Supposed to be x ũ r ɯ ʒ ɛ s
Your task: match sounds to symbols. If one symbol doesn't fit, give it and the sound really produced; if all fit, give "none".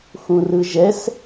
none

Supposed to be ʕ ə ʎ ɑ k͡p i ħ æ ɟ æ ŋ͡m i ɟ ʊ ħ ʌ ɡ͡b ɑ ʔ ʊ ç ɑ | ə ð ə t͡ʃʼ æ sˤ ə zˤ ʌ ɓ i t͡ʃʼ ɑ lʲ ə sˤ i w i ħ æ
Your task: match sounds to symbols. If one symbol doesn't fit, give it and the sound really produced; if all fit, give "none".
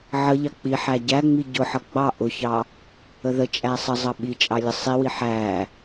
none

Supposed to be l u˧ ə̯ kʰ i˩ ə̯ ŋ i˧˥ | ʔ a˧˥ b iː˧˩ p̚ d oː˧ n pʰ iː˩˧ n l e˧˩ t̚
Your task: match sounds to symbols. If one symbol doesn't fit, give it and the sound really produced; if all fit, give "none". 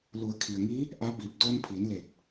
u˧ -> u˩˧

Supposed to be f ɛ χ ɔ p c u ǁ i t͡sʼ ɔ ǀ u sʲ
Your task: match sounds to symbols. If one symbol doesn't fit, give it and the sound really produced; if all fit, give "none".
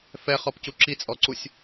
none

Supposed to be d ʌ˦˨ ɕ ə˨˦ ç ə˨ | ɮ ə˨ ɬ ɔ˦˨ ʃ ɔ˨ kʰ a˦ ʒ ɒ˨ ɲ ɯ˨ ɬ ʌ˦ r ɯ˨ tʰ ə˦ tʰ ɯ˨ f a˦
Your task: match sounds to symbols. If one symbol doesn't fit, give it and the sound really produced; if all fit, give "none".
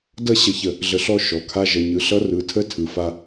ɒ˨ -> ʌ˨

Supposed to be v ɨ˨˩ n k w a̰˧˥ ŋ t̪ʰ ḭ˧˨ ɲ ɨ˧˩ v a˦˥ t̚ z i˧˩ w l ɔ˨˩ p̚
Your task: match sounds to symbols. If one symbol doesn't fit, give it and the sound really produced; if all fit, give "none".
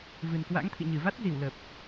ɔ˨˩ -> ə˨˩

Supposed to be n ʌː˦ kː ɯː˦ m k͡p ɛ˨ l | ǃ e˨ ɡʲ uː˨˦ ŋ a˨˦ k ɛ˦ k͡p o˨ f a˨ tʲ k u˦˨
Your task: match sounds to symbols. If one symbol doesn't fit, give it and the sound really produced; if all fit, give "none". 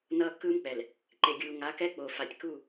uː˨˦ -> uː˨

